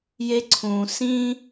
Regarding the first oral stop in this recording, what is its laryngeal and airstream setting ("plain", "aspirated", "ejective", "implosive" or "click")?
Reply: click